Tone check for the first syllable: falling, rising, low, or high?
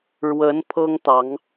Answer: rising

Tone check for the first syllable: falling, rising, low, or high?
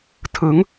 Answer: rising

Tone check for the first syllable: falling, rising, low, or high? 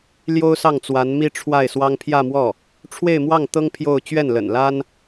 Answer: high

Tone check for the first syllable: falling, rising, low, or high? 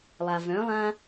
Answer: low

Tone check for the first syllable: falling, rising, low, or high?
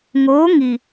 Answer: rising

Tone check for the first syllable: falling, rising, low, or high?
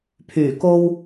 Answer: low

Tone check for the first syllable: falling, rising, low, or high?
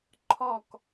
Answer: falling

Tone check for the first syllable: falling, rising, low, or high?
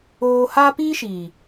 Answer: high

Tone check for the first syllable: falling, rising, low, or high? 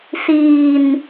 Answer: low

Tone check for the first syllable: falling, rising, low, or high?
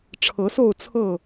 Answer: rising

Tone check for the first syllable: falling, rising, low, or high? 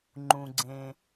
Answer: low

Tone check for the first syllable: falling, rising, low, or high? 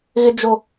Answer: high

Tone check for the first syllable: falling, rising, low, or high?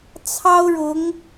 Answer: high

